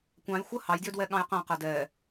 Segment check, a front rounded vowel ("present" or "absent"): present